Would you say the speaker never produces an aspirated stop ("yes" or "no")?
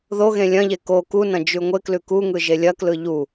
yes